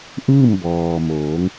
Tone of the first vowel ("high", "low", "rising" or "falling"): falling